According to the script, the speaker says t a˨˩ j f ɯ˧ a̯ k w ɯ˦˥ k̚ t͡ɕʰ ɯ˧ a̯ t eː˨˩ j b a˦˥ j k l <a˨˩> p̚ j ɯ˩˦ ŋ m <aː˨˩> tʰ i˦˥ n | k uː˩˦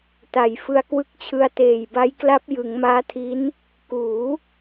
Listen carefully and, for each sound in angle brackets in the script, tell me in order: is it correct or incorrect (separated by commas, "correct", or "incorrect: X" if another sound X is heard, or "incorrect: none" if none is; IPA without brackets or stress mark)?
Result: incorrect: a˦˥, incorrect: aː˦˥